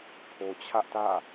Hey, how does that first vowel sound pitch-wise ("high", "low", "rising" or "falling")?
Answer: high